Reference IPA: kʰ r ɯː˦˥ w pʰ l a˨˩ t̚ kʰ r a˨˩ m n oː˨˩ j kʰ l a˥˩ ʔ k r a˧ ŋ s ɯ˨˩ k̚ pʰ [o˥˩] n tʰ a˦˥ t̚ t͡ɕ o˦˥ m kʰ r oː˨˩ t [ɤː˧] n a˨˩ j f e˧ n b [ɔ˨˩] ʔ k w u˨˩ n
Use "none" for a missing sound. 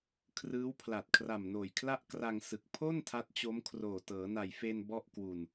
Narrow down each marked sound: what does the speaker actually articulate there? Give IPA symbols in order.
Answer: o˥˩, ɤː˩˦, ɔ˥˩

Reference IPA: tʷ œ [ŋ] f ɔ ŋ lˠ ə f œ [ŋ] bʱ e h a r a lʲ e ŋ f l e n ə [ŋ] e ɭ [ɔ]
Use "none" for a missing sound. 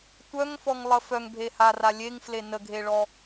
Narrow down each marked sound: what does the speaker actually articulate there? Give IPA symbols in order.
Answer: ŋ, ŋ, ɡʱ, ɔ

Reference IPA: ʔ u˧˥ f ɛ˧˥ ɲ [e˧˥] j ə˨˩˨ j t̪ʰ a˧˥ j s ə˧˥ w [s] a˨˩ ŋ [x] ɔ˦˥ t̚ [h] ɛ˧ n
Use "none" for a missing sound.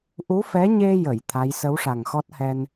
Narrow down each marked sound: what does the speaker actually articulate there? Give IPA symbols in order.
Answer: e˧, ʂ, x, h

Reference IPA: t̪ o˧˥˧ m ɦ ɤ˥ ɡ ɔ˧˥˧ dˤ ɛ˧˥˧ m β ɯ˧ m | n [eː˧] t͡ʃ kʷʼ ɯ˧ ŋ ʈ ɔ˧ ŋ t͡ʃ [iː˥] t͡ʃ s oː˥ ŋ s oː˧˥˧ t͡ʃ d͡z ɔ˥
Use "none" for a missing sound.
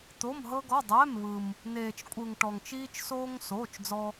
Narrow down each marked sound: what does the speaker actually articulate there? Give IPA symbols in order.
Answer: eː˧, iː˥

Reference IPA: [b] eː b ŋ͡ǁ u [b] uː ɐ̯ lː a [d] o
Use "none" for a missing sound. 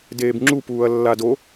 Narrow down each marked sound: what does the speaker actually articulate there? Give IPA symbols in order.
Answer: d, p, d

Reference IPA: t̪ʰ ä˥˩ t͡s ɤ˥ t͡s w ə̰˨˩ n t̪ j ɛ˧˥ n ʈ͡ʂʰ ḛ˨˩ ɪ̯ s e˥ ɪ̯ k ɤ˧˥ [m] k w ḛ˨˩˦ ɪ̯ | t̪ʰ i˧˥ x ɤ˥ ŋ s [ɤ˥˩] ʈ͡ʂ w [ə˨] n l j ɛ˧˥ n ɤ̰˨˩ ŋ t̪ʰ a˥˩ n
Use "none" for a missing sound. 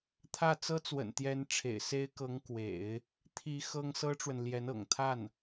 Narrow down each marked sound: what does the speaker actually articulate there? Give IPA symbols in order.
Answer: ŋ, ɤ˥, ə˨

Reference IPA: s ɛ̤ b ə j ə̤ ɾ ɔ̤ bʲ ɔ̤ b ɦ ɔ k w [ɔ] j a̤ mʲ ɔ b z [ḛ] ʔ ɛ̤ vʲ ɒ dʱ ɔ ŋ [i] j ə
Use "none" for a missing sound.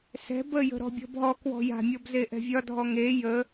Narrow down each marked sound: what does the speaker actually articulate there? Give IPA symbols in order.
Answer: ɔ̤, e, e

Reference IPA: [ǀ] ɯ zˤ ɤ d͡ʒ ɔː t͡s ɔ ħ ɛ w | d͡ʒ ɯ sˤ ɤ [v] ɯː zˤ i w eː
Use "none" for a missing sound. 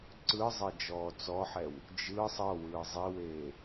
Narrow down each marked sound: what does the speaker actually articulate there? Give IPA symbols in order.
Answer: ǀ, w

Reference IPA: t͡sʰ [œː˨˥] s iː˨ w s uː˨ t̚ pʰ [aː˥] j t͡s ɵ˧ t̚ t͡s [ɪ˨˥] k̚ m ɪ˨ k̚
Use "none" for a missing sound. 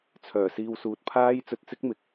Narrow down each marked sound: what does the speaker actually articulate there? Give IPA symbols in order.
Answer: œː˨˩, aː˥, ɪ˥

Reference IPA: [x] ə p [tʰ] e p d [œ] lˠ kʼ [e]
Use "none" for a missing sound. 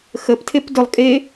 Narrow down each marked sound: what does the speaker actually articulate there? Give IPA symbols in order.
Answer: x, tʰ, ɵ, e

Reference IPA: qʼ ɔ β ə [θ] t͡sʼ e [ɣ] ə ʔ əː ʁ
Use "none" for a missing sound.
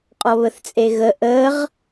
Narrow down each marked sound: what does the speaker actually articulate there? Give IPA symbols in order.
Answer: θ, ɣ

